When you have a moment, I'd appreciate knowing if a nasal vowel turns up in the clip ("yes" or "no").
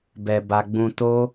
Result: yes